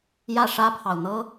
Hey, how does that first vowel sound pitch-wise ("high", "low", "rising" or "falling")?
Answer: falling